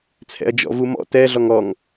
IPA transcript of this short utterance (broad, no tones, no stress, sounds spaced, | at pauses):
t͡sʰ ɛ̰ ɐ̯ d͡ʒ ɔ̰ v u m ɔ̰ t ɛ ɮ ɔ ŋ ɔ ŋ